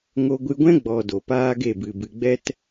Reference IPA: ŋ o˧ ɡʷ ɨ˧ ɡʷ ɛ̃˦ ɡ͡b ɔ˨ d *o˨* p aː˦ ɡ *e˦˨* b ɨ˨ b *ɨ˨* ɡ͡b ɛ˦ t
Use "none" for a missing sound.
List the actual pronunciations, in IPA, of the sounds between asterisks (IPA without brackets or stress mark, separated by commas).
o˨, e˦˨, ɨ˨